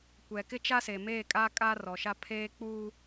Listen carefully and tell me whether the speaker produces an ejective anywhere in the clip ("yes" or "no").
yes